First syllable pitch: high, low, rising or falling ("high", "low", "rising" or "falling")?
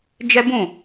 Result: high